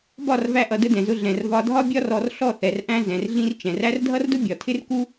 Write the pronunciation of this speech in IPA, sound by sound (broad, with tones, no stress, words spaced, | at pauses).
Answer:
bɒ˦˨rvæ˧ ʔʌ˨də˧ dɛ̃˨zʊ˧ ɮɛ̃˨r vɒ˧ dʱɒ˦bʲɒ˦rɔ˧r ɬɔ˦˨θɛ˨rʔæ̃˧ zɛ̃˨rɮĩ˧r t͡ʃɛ̃˨ræ˦r dʱʌ˦rdʊ˦bʲɒ˨ tʰɪ˦rku˦